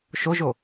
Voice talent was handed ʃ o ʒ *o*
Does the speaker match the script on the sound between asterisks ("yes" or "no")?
yes